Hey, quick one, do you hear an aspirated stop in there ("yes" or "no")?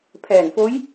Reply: yes